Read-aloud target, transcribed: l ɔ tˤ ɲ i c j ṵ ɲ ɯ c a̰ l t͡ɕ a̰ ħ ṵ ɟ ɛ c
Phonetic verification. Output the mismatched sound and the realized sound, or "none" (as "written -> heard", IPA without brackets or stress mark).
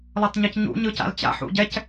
j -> ɲ